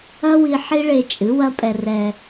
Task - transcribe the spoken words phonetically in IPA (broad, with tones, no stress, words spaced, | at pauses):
ɐ˦wi˧ ħi˦ɭe˧t͡ʃʼɨ˨˦ wɐ˦pʼɛ˧rɛ˧